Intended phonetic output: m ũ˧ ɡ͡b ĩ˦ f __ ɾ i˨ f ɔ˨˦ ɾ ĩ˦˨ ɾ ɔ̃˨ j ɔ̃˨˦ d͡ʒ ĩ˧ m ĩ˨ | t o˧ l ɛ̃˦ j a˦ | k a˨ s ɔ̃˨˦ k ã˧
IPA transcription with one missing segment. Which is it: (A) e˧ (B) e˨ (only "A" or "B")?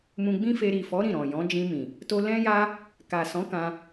A